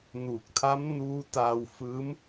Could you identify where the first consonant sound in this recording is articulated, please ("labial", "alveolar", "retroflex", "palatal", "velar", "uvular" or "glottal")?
alveolar